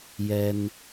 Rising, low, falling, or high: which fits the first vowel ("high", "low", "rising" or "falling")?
high